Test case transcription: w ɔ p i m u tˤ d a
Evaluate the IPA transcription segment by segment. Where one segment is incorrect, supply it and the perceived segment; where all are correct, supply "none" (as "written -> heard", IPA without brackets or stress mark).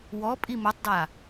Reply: p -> pʼ